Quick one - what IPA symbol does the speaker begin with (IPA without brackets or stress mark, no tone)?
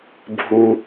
bʱ